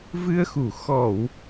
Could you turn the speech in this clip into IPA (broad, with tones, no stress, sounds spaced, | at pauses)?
v ɨ˧ ə̯ x u˧˩ x ɔ˧˩˨ w